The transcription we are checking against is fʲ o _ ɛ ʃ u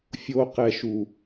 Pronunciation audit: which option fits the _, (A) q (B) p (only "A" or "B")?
A